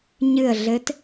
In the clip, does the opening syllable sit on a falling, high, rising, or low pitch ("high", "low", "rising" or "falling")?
falling